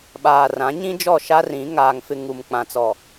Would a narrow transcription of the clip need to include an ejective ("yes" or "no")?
no